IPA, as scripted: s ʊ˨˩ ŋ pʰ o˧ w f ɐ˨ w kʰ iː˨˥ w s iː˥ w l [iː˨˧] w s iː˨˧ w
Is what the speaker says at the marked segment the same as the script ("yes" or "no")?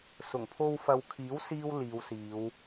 yes